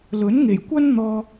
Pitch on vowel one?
rising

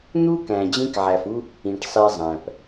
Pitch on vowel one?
high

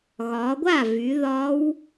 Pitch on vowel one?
rising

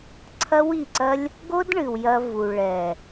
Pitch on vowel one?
high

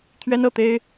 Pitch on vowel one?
high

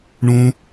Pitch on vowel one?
high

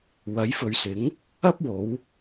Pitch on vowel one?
rising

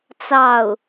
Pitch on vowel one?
falling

